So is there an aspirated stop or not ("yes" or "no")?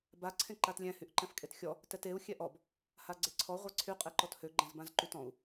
yes